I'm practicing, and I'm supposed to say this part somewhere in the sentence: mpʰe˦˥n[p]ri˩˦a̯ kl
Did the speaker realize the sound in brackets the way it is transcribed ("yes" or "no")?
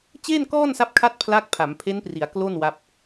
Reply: yes